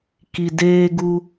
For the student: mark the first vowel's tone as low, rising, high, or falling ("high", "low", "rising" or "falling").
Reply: low